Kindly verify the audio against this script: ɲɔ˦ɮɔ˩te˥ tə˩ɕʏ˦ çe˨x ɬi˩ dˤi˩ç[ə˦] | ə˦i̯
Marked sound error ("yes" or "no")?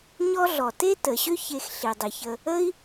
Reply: yes